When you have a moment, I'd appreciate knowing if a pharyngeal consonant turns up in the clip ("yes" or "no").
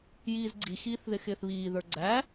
no